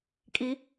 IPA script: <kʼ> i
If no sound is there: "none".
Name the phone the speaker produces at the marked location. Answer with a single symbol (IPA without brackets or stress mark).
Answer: kʼ